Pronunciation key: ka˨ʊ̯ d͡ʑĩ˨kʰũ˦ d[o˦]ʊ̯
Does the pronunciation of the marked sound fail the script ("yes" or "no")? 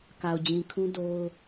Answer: no